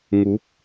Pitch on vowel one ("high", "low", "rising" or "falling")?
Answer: rising